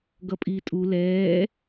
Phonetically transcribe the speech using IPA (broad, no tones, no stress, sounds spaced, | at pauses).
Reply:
ɡ ʌ pʼ iː tʼ u l ɛː